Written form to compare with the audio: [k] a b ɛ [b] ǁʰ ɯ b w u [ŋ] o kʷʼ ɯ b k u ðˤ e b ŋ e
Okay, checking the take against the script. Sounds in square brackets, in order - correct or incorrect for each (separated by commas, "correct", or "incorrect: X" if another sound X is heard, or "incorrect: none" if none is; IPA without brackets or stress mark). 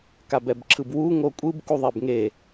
correct, correct, correct